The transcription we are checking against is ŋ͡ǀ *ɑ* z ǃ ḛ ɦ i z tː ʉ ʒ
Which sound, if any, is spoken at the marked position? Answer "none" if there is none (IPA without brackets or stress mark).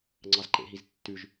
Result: ɑ